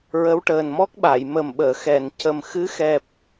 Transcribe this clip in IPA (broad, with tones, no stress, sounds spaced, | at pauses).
ɹ ə˧˥ w ʈ əː˨˩ n m ɔ˦˥ k̚ ɓ a˨˩˨ j m ə˨˩ m ɓ əː˨˩˨ x ɛ˨˩˨ n c ə˨˩ m x ɨ˧˥ x ɛ˨˩ p̚